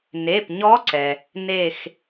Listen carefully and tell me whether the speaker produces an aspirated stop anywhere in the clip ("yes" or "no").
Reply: no